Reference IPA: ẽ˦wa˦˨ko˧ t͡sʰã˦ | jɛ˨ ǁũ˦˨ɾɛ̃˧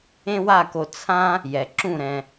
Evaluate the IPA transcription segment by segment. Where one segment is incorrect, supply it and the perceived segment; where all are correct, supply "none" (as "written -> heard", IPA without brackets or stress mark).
none